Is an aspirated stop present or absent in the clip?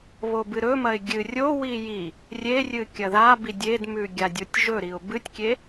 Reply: absent